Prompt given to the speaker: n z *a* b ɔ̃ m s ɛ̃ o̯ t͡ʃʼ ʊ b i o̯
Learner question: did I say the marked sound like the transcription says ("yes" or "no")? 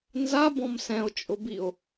yes